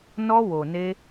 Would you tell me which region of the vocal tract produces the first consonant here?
tongue tip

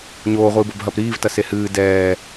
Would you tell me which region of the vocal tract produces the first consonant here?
palate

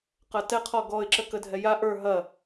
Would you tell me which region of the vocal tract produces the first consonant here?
uvula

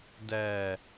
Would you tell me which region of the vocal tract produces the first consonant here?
tongue tip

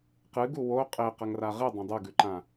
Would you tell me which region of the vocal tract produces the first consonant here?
uvula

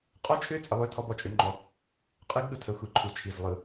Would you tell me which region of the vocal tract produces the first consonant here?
uvula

